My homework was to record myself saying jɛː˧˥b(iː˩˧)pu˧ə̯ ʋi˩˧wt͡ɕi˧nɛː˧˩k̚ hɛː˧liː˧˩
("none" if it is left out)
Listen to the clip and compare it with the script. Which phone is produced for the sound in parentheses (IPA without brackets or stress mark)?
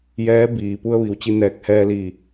iː˩